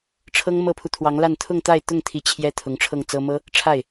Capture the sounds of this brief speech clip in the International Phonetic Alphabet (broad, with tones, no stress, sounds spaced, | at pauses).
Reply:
ʈ͡ʂʰ ɤ˥ ŋ m ɤ˥ pʰ u˨ t̪ʰ w ɑ˧˥ ŋ l a˥˧ n t̪ʰ ʊ˥˧ ŋ t̪ a˥˧ ɪ̯ t̪ ʊ˥˩ ŋ t̪ʰ i˧˥ t͡ɕʰ j ɛ˥ t̪ʰ ʊ˧˥ ŋ ʈ͡ʂʰ ɤ˥˩ ŋ t͡s ɤ˥ m ɤ˥ | ʈ͡ʂʰ a˥˩ ɪ̯